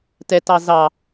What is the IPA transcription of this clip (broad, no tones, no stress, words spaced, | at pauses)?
tɛtɑ zɑ